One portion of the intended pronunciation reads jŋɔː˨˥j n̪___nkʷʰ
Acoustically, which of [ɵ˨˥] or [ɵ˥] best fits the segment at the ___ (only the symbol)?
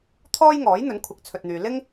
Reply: ɵ˨˥